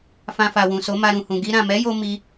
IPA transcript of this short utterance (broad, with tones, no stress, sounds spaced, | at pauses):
f ã˧ f a˨ w ũ˨ s o˨˦ m a˧ ɾ ũ˨ h ũ˨ ɡ i˧ ɾ ã˨ m ɛ˨˦ j o˧ m i˦